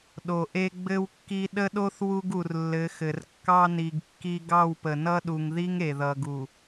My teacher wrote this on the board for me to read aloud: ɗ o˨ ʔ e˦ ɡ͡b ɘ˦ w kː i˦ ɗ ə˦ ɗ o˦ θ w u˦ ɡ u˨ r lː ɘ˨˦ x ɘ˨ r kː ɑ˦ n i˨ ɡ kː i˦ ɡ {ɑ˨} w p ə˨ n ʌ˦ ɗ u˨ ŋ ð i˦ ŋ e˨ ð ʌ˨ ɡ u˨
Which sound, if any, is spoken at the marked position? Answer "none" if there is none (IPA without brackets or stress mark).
ɑ˦˨